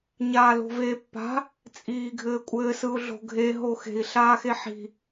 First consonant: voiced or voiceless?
voiced